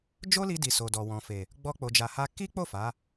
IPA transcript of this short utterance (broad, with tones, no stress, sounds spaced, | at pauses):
d͡ʒ o˦ l i˧ d i˨ s o˨ d ɔ˨ w ɔ̃˨ f e˨ | ɡ͡b ɔ˦ k͡p o˧ d͡ʒ a˧ h a˦ k i˦ k͡p o˦˨ f a˨˦